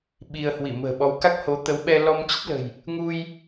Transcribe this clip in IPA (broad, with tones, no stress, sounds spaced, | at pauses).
ɓ i˧ ə̯ h w i˧˩ m ə̤ː˨˩ ɓ ɔ˨˦ w k a˦˥ k̚ h o˨˦ t̪ ə˨˦ w ɓ ɛ˧ l ɔ˧ m t͡ɕ ə˦˥ t̚ l ə̤˨˩ j | ŋ u˧ j